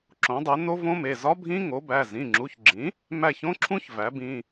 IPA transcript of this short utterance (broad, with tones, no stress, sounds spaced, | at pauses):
ǁ õ˩˥ dˤ e˩˥ n o˦˥ v õ˦˥ m e˩˧˩ z ɒ˦˥ bʱ ĩ˦˥ ŋ o˩˥ b æ˩˧˩ z ĩ˩˧˩ ŋ͡ǁ u˩˧˩ ç ɡ͡ǁ ĩ˩˥ | m æ˦˨ ç õ˦˥ ǁʰ ũ˦˥ ç v æ˩˥ b ĩ˩˧˩